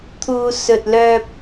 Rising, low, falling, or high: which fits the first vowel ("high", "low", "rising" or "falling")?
low